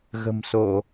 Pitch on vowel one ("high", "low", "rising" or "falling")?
low